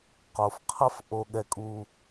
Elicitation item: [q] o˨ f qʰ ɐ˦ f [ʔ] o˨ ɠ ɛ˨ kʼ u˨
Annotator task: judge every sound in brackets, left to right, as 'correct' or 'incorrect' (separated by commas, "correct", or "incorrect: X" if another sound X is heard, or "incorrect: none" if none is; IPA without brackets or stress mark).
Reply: correct, correct